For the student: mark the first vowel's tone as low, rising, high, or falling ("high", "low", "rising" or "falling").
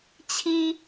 high